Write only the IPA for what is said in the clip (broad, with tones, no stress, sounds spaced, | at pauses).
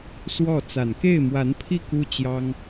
s w ɔ˥˩ t͡s a˨˩ n k e˥˩ ɪ̯ m w a˧˥ n pʰ i˥˩ k u˥ t͡ɕ j ɑ˥ ŋ